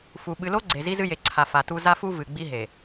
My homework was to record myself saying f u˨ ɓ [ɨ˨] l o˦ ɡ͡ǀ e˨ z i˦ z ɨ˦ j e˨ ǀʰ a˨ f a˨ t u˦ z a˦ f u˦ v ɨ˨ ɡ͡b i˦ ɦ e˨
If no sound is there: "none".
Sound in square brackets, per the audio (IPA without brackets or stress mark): ɨ˨